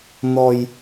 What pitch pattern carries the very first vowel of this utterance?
low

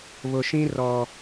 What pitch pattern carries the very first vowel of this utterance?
low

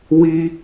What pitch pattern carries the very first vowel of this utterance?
high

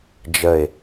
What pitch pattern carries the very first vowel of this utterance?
falling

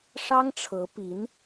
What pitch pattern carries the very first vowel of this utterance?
high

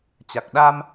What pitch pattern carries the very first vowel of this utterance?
low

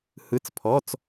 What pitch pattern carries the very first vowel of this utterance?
rising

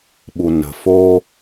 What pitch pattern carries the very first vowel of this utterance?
low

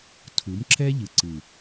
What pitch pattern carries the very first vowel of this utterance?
rising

